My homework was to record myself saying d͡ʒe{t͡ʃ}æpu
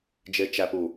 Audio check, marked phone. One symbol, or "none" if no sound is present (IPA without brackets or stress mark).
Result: t͡ʃ